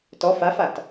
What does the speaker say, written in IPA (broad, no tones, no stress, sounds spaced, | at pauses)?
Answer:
t ɔ f a f a t